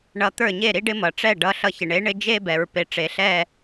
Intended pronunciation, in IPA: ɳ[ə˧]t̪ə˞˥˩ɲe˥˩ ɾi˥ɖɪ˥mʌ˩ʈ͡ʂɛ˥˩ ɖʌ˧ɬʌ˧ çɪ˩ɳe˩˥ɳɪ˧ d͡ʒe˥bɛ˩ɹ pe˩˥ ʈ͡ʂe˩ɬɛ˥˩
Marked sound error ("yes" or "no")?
yes